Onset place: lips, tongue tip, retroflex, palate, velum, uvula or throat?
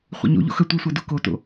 uvula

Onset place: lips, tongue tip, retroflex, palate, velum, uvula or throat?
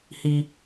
throat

